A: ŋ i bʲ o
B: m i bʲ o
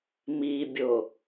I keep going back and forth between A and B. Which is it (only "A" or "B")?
B